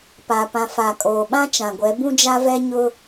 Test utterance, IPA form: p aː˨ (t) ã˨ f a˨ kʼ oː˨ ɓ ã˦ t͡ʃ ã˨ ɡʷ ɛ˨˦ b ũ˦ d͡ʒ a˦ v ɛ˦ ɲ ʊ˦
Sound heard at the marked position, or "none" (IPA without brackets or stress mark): p